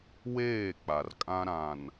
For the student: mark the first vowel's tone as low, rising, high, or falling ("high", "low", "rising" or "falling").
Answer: falling